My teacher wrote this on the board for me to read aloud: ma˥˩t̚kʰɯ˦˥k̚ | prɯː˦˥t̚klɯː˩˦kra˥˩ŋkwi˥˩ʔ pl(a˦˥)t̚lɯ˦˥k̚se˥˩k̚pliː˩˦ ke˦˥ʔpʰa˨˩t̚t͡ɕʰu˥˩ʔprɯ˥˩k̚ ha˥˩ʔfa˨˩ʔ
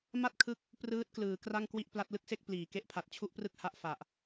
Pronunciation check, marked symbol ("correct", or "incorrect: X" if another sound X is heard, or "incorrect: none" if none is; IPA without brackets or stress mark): correct